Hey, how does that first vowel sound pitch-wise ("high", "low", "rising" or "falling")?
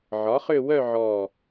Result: rising